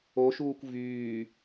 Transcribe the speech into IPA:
o ʃ uː kʷ v yː

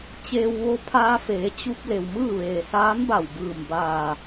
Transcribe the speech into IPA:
t͡ɕ eː˧ w ʋ o˧ pʰ aː˧ f eː˩˧ t͡ɕ u˧ p̚ l e˩ w m ɯː˥˨ ʋ eː˩ s aː˧˥ n b a˧˩ w b ɯː˧˩ m b aː˧˩

